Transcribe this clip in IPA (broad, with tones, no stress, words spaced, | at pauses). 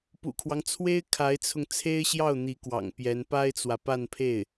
pṵ˨˩kʰwɑ˦ŋt͡sʰwe˥ɪ̯ kʰa˧˥ɪ̯t͡sʰʊ˧ŋ t͡sʰe˥ɪ̯ɕjɑ˥˩ʊ̯ n̪i˧˥kwɑ̰˨˩ŋ pjɛ˧˥n pa˥ɪ̯t͡swä˨ pa˥˧npʰe˥˩ɪ̯